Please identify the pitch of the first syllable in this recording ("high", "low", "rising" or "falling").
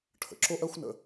low